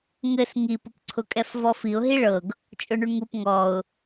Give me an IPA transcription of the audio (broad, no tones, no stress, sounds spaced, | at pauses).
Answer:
ŋ ɘ s ŋ i p ʊ p ǀʰ ʊ kʼ ɛ f v ɔ f i ʊ̯ ɦ i ɭ ɤ ɡ | t͡ʃʼ ʊ ɳ u ɳ ŋ u p ŋ ɔ ʊ̯